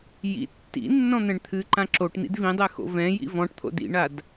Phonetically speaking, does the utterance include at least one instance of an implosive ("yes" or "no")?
no